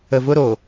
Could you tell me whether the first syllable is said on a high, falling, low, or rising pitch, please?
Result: low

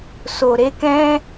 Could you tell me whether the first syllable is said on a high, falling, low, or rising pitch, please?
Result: low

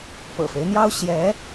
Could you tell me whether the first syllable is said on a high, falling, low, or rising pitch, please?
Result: low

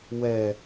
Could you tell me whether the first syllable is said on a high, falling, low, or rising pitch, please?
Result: low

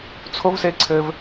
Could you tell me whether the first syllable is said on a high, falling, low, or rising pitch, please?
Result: high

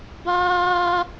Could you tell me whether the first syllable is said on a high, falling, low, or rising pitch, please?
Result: high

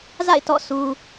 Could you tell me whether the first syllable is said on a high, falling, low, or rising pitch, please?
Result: falling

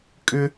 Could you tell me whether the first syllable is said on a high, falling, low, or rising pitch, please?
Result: high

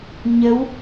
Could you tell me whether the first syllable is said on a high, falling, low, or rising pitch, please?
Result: rising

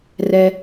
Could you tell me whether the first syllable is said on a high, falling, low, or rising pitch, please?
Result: high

